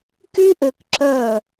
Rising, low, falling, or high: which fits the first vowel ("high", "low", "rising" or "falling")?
high